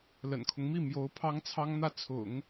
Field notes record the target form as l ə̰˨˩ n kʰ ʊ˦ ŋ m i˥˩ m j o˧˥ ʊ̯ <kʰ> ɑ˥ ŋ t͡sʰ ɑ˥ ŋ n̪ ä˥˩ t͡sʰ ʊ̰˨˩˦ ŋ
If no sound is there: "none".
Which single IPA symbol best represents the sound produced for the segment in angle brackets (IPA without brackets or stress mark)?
pʰ